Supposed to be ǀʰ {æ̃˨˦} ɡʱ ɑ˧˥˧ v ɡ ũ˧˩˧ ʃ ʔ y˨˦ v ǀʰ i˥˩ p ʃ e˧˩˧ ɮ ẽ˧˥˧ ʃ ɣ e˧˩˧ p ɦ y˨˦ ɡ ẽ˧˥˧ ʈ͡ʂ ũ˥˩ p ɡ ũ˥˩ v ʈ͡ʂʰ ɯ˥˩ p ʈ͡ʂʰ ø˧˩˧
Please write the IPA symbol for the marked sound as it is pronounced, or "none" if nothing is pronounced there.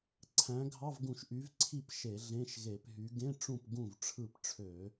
æ̃˨˦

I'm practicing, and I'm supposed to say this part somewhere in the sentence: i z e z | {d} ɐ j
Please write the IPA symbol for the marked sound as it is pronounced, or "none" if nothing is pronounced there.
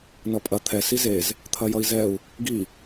t̪ʰ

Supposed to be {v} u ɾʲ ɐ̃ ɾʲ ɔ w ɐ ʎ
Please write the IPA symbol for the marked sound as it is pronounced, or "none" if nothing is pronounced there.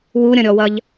w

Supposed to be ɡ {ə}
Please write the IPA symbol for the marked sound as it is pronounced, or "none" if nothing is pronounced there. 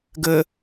ə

